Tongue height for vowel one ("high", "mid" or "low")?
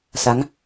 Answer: low